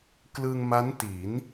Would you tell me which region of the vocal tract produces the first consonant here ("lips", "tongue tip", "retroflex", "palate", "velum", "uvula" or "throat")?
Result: velum